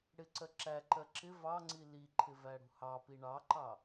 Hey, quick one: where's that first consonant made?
retroflex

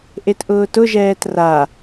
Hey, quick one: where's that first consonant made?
throat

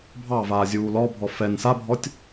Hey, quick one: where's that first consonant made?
lips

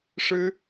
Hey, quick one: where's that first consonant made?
retroflex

